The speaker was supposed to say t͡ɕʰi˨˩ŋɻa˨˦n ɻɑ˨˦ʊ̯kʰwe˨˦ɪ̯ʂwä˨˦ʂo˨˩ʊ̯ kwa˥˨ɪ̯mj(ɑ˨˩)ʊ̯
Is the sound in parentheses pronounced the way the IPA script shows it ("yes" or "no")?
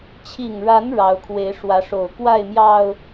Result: yes